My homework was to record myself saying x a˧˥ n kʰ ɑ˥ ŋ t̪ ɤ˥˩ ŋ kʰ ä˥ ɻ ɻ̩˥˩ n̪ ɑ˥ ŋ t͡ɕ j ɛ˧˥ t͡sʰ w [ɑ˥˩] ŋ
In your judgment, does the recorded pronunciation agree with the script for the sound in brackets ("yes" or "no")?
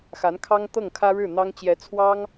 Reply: no